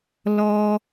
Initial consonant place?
alveolar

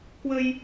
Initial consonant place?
velar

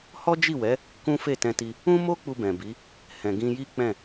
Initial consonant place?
glottal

